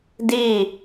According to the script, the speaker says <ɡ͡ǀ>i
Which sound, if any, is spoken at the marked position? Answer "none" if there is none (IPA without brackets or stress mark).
d